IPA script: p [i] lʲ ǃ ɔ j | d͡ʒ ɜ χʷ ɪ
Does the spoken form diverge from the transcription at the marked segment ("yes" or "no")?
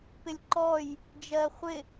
yes